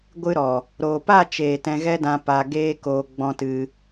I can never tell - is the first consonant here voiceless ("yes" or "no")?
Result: no